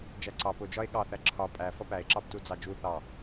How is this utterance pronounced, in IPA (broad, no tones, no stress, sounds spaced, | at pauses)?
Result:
d͡ʒ æ ǀ ɑ p ʊ d͡ʒ ɒ e̯ ɠ ɑ θ æ ǁʰ ɒ pʼ æ f ʌ p æ e̯ ǁ ɑ b t u d͡z ɑ d͡ʒ u θ ɑ